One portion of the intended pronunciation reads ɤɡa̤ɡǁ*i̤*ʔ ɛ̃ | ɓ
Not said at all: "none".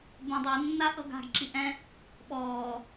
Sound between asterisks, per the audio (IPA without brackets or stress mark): i